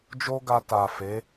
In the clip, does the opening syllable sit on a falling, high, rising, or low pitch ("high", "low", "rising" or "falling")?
high